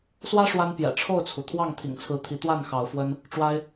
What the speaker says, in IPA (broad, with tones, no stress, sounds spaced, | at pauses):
s w ä˦ ʂ w a˦ n p j ɛ̰˨˩ ʈ͡ʂʰ o˥˨ ʊ̯ t͡sʰ u˩ t̪ʰ w ɑ˥˨ ŋ t̪ʰ ḭ˨˩ ŋ t͡sʰ ɹ̩˨˦ t̪ʰ i˨˦ t̪ w a˥˨ n x ɑ˨˦ ʊ̯ f w ə˦ n | ʈ͡ʂ w a˦ ɪ̯